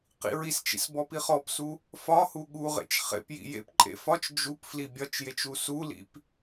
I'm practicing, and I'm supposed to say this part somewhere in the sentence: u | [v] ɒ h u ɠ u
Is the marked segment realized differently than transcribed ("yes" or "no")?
yes